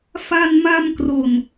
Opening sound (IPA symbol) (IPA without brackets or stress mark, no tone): f